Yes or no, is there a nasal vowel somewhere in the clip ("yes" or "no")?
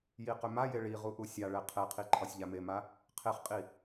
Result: no